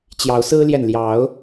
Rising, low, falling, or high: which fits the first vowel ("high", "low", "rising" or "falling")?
rising